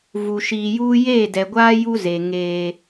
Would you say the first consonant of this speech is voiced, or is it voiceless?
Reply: voiced